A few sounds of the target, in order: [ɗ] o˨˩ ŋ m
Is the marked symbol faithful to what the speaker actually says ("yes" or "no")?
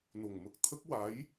no